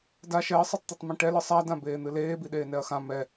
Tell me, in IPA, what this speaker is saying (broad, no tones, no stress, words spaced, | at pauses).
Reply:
da ʃɛɐ̯sˤɛtˤt̪etˤmĩ ʈɛlɨ sˤadã beːn̪ɨleːbi ɗeːnɛɐ̯xã mɛ